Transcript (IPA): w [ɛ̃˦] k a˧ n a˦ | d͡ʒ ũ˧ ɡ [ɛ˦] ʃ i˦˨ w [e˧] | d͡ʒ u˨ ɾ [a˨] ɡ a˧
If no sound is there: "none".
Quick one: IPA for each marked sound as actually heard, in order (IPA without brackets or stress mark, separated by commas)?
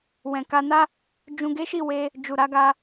ɛ̃˨, e˦, e˧, a˨˦